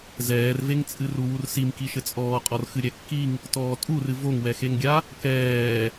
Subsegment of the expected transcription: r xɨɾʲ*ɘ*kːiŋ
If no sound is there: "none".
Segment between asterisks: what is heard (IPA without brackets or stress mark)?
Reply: ɛ